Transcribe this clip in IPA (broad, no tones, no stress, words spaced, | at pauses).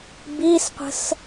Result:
bisqʷə̤s